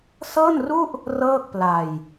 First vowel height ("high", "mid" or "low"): mid